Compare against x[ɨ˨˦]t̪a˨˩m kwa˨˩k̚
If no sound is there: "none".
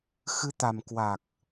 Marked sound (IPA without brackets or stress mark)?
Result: ɨ˨˦